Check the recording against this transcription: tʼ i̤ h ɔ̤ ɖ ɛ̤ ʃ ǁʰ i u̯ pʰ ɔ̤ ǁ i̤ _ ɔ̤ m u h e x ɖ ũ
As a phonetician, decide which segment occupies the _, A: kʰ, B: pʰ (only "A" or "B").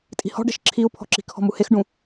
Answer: A